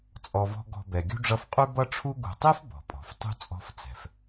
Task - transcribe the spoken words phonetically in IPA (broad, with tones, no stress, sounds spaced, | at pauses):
t͡sʼ ɔ˦ v ɔ̤˥ ɡ ɔ̤˦ b ɛ˨ ɡʲ ṳ˥ ɖ͡ʐ ʌ˦ f qʼ ʉ˥ b ʌ˦ ʈ͡ʂʰ u˦ ɡ ṳ˨ tˤ e˥ f b ɔ̤˩ pʼ ɔ̤˩ f tˤ ṳ˥ t͡sʼ ɔ̤˦ f t͡s ɛ̤˩ f